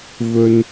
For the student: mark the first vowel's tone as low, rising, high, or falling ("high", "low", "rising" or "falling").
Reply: low